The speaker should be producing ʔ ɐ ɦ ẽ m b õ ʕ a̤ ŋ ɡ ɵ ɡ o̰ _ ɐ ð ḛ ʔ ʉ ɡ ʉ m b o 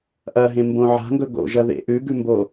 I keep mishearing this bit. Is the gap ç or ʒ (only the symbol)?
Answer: ʒ